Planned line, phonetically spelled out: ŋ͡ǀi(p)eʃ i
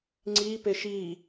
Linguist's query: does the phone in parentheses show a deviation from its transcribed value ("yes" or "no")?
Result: no